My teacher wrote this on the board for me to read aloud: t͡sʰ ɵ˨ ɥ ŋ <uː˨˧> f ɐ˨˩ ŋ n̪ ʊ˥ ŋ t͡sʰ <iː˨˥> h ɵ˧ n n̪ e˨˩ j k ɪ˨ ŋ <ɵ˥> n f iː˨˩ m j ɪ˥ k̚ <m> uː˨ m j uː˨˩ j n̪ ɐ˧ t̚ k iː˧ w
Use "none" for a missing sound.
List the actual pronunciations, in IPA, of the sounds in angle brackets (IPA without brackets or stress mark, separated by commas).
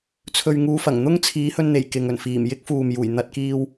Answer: uː˨˧, iː˨˥, ɵ˨˩, f